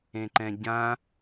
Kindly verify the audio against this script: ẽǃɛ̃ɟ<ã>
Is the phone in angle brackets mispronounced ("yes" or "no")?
no